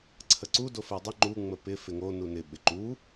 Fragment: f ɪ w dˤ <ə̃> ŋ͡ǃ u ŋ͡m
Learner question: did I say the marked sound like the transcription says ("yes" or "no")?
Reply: no